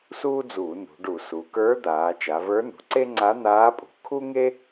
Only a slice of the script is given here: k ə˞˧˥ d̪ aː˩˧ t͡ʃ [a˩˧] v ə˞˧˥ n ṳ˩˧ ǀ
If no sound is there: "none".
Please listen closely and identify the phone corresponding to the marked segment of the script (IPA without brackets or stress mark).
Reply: a˩˧